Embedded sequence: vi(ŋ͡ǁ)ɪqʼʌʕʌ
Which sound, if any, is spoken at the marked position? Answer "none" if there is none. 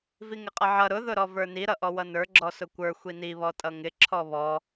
ŋ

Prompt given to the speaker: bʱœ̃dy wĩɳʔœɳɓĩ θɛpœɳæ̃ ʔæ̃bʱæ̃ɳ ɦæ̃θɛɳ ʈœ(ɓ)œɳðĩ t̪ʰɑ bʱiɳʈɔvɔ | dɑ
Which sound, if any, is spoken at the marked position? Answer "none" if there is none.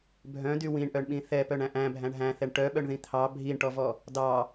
ɓ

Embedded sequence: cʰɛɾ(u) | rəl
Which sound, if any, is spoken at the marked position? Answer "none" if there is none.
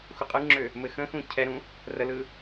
ũ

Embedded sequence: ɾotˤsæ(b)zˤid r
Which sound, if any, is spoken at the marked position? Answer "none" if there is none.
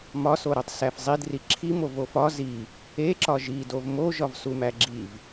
f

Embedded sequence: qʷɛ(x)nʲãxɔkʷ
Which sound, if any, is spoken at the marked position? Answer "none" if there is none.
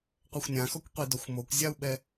xʷ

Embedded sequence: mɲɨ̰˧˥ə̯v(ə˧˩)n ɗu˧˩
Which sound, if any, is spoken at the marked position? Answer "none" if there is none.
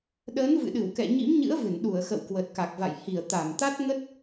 ɨ˧˩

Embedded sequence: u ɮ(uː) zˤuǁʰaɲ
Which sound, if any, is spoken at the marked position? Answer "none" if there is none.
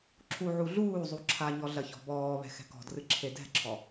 uː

